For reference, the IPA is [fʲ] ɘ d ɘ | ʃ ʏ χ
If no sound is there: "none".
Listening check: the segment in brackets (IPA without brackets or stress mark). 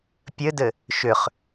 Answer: pʲ